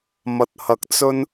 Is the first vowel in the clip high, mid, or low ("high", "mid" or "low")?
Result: low